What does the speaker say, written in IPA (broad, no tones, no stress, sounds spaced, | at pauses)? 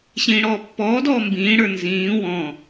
ɕ ĩː ɽ ɔː pː ɔː d ɔː m b ĩː ɽ ə˞ n z ĩː w ɔ̃